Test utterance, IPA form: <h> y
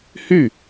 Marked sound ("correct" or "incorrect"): correct